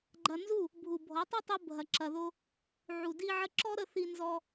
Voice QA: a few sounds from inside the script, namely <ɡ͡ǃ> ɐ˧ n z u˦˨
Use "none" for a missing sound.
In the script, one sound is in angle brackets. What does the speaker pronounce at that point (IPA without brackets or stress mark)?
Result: ɡ͡ǃ